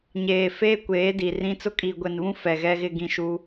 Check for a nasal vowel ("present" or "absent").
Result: present